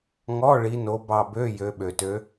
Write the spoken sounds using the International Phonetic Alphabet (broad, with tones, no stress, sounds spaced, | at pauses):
ŋ ɔ˧˥˧ ɭ i˨˦ n o˨˦ b ɑ˧˩ b ø˧˥˧ j ø˨˦ ɓ ø˩ t ø˨˦